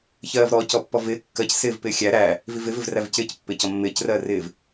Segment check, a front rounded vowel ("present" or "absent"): absent